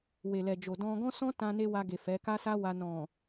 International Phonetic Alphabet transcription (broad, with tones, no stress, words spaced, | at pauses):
we˨lɛ˨d͡ʒo˨ dɔ̃˧ ɡɔ̃˦sɔ̃˦tã˧ne˧ wa˧ɡe˨ fɛ˨˦ka˦sa˦wa˧ nɔ̃˨